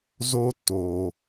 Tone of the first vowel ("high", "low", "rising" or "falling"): high